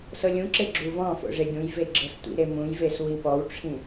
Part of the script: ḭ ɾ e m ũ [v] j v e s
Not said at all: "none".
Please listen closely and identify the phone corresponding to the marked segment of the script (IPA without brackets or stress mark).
none